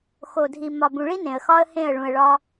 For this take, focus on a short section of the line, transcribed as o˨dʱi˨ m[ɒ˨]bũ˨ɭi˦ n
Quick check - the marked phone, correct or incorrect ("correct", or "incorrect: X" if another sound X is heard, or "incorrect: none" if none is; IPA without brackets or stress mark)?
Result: correct